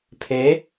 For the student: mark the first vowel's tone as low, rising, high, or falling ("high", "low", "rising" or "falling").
rising